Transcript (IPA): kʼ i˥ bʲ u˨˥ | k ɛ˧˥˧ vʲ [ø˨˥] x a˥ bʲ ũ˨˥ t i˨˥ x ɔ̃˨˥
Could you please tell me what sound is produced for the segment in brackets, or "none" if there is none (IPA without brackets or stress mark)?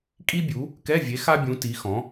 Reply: e˨˥